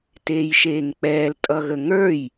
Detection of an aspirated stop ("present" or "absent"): absent